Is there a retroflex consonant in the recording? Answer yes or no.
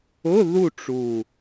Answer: yes